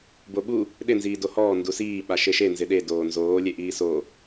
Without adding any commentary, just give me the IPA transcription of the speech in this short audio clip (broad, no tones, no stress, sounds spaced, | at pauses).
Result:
b o ɓ u | ɗ ɪ n z iː d o h ɔː n d u s iː ɓ a ʃ e ʃ e n z ɪ ɗ e d oː n z oː lʲ e ʔ iː s o